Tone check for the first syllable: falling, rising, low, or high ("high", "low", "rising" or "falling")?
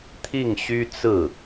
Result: falling